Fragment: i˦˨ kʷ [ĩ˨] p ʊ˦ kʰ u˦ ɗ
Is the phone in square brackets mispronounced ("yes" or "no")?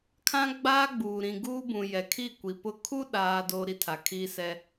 yes